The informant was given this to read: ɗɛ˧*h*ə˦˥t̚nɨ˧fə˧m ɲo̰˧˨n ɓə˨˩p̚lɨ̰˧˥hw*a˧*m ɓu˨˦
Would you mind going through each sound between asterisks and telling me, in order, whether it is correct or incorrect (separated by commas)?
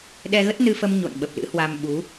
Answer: incorrect, correct